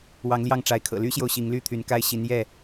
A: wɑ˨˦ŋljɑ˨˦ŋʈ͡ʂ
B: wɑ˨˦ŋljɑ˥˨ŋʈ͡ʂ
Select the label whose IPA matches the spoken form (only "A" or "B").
B